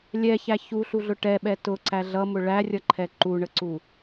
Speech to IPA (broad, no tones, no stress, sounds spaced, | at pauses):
lʲ ɛ ç æ ç u ɬ u ɮ ʊ ʈ ɛ ɓ ɛ t ʊ ǀ æ ɮ ʌ m ʊ ɭ æ rʲ ʌ ǃʰ ɛ ǃ u ɳ ə ǀ u